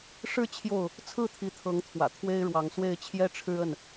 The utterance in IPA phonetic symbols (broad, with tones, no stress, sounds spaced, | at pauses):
ʂ ɻ̩˥˨ t͡ɕʰ j o˥˨ ʊ̯ | t͡sʰ ɹ̩˥˨ t̪ʰ i˨˦ t̪ʰ ɤ˨˦ ŋ t̪ʰ w ä̰˨˩ t̪ʰ w e˦ ɪ̯ ɻ w ɑ˨˦ ŋ s w e˥˨ ɪ̯ t͡ɕʰ j ɛ˦ ʈ͡ʂʰ ɻ̩˦ ə˥˨ n